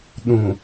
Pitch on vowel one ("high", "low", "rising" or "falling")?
low